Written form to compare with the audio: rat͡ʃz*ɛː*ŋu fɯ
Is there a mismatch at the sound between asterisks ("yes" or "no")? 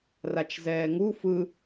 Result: no